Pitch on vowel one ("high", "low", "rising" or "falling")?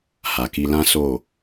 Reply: low